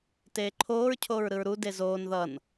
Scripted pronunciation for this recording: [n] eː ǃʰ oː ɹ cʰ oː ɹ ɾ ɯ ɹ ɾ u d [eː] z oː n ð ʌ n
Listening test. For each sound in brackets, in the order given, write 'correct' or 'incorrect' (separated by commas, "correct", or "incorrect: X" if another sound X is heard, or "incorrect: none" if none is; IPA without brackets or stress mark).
incorrect: t, incorrect: e